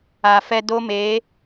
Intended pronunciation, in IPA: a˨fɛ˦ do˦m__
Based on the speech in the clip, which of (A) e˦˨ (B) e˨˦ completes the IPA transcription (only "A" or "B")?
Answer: B